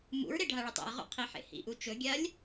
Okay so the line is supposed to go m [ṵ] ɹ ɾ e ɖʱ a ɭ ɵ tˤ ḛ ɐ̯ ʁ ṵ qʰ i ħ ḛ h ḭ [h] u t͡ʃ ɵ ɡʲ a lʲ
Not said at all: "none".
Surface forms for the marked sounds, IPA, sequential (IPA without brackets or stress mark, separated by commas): ṵ, ʔ